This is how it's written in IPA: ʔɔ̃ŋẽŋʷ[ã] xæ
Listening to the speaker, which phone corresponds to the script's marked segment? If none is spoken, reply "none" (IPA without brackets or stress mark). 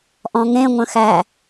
ə̃